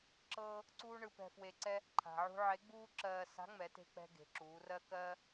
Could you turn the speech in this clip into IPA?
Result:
ǁ ɤː˥ | ǀ uː˥ ɳ ɯ˧ p ɛ̤˧ f w e˧ ǀ ɛ˥ | ǃʰ a̤˩ ʕ ṳ˧ ʕ e˧˥ ɡ͡b uː˥ ǁ ɜː˧ s a̤˧˥ ŋ͡m ɛ˩˧ t e̤˧ k͡p ɛ̤˧ ɡ e̤˩˧ ǁ uː˩˧ r ɜ˥ k ɜː˥

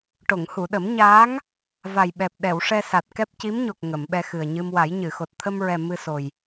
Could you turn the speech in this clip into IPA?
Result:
ʈ o˨˩˨ ŋ h u˨˩˨ ɗ ə˨˩˦ m ɲ aː˧˥ ŋ | v a˨˩ j ɓ ɛ˨˩ p̚ ɗ ɛ˨˩˨ w ʂ ɛ˧ s a˨˩ t̚ k ɛ˦˥ p̚ c i˧˥ m ɲ o˨˩ k̚ ŋ ə˨˩˨ m ɓ ɛ˧ x ɨ˨˩ ə̯ ɲ ɨ˧ m w a˨˩˦ j ɲ ɨ˨˩˨ x o˨˩ t̚ t̪ʰ ə˧ m ɹ ɛ˨˩ m ɨ˧ s o˨˩ j

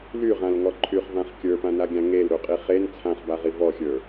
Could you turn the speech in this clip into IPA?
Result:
l y ʁ ã l ŋ ɔ ǃʰ y χ v ã χ kʲ ə˞ p ã n a ɡʲ ã ŋ e l ɾ u qʼ i χ e n t͡sʰ ã χ b a ʁ i v ɔ xʲ ə˞

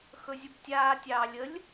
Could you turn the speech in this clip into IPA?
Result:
x ɵ zʲ u b tʲ aː tʲ ɑː lʲ ə lʲ

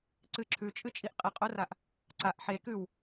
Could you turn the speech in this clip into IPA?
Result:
ǀ ɨ ǁʰ ʉ t͡ʃʼ ɨ t͡ʃʼ i ʔ qʼ i qʼ o r a ʔ | ǀ a ʔ ħ e k ʉ w

